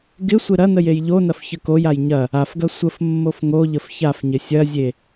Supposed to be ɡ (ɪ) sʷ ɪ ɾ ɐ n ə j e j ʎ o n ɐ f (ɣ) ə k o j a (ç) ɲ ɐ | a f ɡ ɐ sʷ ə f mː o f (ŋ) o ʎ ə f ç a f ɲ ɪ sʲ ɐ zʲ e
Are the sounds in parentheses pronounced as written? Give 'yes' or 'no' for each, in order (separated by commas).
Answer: yes, no, no, yes